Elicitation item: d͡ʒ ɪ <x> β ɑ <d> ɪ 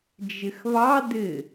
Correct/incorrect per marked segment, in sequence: correct, correct

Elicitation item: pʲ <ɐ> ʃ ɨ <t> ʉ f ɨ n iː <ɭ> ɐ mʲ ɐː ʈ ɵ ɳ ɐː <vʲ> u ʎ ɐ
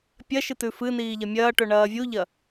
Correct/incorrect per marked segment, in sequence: correct, correct, incorrect: ʎ, correct

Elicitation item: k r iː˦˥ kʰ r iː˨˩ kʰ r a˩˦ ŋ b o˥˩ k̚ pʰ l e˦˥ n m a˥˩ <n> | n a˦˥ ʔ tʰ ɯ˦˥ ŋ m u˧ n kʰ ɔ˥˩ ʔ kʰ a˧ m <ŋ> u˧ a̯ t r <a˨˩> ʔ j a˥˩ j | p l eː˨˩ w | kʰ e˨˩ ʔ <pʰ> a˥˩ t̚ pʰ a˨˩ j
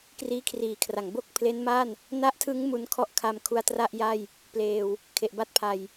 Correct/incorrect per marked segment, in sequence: correct, incorrect: kʰ, incorrect: a˥˩, incorrect: b

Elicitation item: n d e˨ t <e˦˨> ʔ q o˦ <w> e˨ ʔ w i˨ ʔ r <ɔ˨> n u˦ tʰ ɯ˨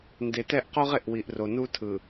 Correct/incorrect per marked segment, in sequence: incorrect: ɛ˦˨, incorrect: ʁ, incorrect: o˨

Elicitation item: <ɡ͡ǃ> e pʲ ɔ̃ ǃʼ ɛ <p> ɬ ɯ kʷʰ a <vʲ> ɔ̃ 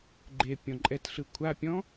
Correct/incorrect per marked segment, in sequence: correct, incorrect: t, incorrect: pʲ

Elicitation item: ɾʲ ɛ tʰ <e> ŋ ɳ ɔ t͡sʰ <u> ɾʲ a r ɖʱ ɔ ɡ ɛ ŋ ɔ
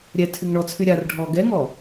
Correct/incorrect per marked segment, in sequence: incorrect: y, incorrect: y

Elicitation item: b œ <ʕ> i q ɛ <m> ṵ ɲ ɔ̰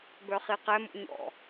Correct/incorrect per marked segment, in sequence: incorrect: χ, correct

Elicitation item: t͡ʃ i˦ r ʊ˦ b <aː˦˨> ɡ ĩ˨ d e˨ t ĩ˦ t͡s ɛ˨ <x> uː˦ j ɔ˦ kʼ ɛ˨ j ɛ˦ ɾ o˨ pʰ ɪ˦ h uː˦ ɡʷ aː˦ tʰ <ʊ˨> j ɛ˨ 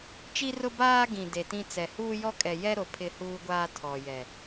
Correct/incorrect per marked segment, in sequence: incorrect: aː˦, incorrect: h, incorrect: ɔ˨

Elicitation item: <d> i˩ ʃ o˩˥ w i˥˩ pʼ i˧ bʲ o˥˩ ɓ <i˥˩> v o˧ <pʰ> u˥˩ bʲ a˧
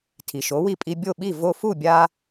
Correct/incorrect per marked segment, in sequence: incorrect: tʰ, correct, incorrect: f

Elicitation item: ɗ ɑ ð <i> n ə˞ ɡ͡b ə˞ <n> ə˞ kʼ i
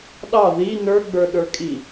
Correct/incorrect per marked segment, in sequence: correct, incorrect: ɗ

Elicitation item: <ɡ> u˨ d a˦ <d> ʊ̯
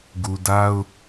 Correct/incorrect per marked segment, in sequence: correct, incorrect: none

